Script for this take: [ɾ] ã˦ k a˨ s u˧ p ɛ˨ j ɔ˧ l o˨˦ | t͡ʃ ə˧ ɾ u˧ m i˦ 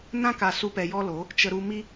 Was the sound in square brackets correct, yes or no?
no